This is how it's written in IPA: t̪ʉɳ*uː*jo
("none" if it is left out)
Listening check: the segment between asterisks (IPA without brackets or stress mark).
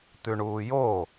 uː